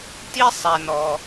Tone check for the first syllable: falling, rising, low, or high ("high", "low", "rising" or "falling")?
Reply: high